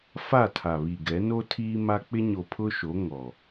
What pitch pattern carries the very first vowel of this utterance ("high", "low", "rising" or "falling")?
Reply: falling